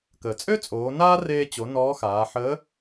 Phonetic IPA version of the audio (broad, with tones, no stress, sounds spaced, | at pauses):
k əː˩ t͡sʼ ø˥ t͡sʼ oː˩˧ n aː˥ r eː˧ t͡ɕ o˩˧ n ɔː˧˥ x aː˩˧ ħ əː˧˥